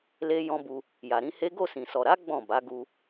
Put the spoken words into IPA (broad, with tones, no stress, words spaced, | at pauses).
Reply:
le˦jɔ̃˦bu˧ | ja˨ɾĩ˨˦he˦ ɡo˦˨sĩ˨sɔ˨ ɾa˨˦ ɡ͡bɔ̃˦˨ba˨˦ɡu˧